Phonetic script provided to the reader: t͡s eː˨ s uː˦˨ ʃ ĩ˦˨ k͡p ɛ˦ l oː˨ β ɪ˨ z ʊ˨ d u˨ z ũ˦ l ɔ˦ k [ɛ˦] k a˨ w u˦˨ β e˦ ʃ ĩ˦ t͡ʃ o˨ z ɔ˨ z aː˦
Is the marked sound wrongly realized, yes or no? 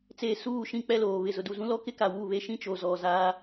yes